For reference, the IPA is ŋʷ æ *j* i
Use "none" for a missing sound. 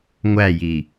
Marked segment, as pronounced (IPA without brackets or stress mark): j